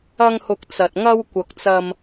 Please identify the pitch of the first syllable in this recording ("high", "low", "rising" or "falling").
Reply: high